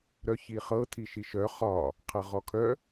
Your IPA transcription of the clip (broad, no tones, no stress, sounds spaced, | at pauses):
ɾ œ ç i χ ɤ tʰ i ʃ i ʃ œ χ ɒ | qʰ ɤ ʁ ɔ kʰ œ